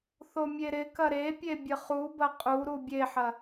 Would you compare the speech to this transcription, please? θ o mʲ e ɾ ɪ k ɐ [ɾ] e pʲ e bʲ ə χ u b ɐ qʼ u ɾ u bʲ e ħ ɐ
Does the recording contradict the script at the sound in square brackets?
no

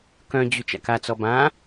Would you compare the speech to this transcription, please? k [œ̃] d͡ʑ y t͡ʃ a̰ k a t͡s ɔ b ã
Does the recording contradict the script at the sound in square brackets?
no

